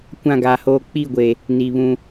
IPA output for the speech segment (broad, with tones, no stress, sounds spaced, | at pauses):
kʷ ã˦˨ ɡ aː˨ h oː˦ k͡p i˦˨ ɡʷ e˨ | n i˨ β ũ˦